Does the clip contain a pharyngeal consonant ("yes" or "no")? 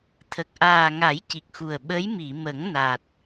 no